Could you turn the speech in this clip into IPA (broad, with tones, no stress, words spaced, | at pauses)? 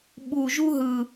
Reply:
ɓu˨˩ʒu˥ɦɯ˨˩